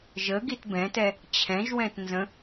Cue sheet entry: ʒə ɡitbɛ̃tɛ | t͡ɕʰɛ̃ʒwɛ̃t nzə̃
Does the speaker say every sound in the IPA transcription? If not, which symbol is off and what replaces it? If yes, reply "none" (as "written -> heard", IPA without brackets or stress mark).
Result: none